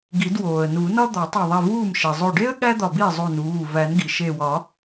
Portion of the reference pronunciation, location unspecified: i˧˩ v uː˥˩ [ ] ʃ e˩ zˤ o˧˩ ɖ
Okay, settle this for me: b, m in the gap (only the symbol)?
m